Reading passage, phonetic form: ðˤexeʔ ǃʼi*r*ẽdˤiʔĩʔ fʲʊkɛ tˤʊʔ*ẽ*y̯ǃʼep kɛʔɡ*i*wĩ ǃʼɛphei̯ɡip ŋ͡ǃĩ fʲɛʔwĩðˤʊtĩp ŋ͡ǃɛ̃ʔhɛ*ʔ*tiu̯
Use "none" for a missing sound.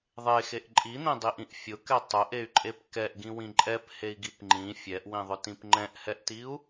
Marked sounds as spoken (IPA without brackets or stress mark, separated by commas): n̪, e, ĩ, ʔ